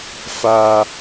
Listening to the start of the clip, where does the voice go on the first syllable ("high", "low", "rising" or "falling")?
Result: high